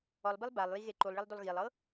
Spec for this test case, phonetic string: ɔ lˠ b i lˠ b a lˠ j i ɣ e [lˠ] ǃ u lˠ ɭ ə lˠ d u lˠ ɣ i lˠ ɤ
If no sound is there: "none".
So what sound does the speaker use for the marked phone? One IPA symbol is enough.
none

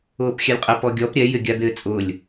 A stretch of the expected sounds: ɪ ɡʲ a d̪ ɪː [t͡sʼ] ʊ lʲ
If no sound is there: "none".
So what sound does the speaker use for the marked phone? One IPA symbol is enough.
t͡sʼ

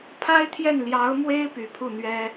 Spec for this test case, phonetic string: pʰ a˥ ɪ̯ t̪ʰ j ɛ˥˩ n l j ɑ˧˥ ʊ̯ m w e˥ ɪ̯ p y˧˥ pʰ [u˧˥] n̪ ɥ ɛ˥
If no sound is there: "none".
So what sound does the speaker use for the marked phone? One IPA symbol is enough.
u˥˩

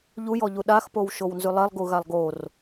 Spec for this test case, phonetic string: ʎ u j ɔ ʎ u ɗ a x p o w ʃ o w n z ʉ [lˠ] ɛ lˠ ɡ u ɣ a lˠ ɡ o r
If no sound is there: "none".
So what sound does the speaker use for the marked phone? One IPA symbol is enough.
lˠ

